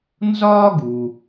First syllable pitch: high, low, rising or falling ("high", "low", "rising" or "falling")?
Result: high